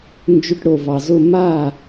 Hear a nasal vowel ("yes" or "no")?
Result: no